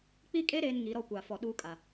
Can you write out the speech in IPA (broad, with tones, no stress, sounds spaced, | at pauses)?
k͡p i˦ kʼ e˦ ɾ eː˦ n ŋ i˨˦ ɾ ɔ˦ kʷ aː˨ f ɔ˨ ɗ uː˦ kʼ a˨